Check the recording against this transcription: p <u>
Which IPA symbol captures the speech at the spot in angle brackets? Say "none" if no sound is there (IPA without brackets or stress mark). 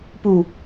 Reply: u